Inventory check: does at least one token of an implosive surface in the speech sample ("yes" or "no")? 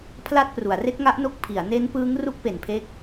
no